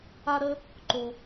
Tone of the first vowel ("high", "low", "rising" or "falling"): high